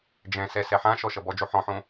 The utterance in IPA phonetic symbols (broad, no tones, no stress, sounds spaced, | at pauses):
d͡ʒ ɛ̃ s ɛ s ɛ ħ ã ʃ ɔ ʃ ʌ b ɔ d͡ʒ o ħ ɔ̃ ħ õ